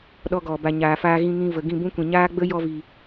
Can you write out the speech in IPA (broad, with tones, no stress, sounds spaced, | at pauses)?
ɗ ɔ˧ ɡ ɔ˨ b a˨ ɲ aː˨ f aː˧ ɣ ĩ˧ ŋ ĩ˧ v ə˨ ɡ ĩ˦˨ b ũ˦ kʷ ĩ˨ ɲ aː˦ ɡ͡b ə˦ j ɔ˧ v i˨